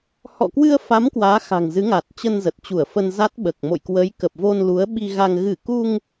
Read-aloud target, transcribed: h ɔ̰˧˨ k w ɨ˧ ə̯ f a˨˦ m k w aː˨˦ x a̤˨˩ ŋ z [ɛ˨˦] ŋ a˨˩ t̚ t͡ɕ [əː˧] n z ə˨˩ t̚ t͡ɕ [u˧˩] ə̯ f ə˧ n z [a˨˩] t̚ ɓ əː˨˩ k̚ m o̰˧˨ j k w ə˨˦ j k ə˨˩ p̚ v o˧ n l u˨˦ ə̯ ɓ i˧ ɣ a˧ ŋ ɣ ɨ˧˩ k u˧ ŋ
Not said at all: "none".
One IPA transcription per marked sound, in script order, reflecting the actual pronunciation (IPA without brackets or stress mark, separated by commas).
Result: ɨ˨˦, ə˧, u˧˩, a˦˥